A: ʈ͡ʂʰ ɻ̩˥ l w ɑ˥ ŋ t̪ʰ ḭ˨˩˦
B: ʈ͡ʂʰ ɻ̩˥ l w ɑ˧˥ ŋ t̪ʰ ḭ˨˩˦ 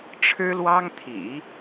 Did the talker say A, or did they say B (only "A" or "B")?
A